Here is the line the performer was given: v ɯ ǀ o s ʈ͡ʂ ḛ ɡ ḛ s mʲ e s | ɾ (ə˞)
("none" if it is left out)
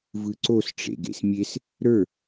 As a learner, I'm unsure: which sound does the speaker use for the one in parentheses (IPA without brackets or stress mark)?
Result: ə˞